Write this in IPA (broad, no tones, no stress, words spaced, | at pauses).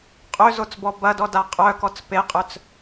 qʼøzot͡sbɔ bɐdɔda qʼœkɔt͡s peqʼœt͡s